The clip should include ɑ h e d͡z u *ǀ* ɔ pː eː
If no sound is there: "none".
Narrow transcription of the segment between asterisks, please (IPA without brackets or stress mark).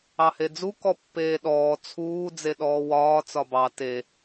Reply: k